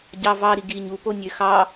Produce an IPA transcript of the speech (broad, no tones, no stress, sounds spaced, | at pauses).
ɟ ɑ v ɑ ɾ i ɡ i ɲ u p o nʲ ø x ɑ